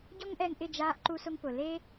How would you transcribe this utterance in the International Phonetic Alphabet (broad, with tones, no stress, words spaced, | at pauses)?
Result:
ɟɔ˦ŋʔɛ˧ŋʔɪ˦˨ d͡ʒaː˧ʔǃu˧sʊ˧ŋ pʊ˨le˦